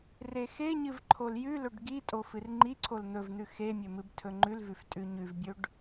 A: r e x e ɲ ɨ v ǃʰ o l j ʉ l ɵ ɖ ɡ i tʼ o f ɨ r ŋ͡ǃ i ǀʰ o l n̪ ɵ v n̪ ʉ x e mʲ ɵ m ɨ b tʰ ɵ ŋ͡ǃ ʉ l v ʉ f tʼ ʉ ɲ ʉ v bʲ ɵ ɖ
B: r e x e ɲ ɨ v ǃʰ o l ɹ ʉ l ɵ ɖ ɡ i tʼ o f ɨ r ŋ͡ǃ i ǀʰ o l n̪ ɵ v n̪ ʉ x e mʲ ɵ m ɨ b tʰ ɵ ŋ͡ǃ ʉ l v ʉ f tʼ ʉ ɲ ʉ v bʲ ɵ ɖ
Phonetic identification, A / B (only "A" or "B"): A